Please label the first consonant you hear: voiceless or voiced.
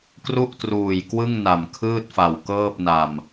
voiceless